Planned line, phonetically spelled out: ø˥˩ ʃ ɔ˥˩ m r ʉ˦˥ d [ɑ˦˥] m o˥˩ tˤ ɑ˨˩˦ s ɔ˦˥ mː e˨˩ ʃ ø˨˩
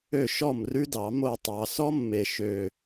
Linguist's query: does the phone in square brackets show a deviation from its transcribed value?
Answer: yes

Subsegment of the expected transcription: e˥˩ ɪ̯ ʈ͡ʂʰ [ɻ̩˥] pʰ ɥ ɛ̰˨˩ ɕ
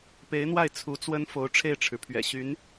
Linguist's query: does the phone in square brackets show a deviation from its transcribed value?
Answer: yes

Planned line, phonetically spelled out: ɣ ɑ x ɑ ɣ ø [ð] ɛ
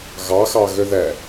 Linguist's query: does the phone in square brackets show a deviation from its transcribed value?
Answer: no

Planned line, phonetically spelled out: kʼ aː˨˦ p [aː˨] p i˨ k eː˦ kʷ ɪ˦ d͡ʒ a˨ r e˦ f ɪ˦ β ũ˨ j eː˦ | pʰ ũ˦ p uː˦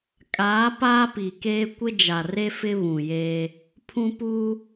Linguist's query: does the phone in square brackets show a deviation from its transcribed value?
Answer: yes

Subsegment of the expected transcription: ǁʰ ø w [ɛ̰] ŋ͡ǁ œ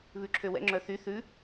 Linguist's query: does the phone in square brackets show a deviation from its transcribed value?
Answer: no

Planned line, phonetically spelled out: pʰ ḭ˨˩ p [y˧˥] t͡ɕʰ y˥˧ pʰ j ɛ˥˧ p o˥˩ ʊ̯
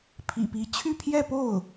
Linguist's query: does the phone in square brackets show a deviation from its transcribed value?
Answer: yes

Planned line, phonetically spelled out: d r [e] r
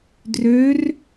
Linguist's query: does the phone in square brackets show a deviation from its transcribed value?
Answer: yes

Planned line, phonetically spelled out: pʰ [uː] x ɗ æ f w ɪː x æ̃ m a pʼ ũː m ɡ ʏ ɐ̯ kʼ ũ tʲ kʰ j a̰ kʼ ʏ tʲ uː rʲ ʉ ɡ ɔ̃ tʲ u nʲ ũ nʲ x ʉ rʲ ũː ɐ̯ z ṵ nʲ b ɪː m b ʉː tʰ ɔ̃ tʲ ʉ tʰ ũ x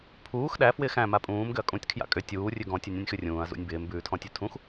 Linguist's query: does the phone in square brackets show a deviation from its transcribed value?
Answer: no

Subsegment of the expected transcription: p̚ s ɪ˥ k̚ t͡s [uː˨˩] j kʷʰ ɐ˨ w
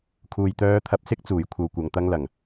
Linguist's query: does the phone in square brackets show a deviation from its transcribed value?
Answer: no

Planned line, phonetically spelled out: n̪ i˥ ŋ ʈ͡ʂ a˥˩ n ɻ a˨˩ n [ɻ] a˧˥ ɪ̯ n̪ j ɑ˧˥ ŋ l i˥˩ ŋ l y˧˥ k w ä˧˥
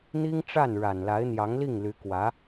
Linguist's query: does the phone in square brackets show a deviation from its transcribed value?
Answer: yes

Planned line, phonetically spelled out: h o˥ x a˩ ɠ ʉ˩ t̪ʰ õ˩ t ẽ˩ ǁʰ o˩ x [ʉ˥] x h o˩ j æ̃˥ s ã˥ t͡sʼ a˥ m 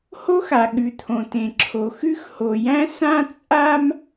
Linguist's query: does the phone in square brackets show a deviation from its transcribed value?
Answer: no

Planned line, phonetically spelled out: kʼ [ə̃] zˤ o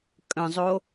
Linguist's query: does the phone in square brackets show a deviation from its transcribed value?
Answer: no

